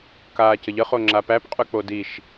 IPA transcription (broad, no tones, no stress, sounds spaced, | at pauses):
k aː c ə ʎ ə χ o ŋ͡ǁ a p æ p qʼ ʉ k͡p o d i ʃ